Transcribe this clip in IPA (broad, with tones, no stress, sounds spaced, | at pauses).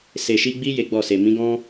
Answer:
s e˨ ʃ i˧ ɡ͡b i˦ j e˦ ɡ͡b ɔ˦˨ s e˨ m ĩ˨˦ ɡ ɔ̃˦